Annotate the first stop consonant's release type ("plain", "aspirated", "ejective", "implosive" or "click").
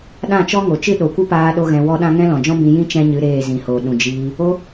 implosive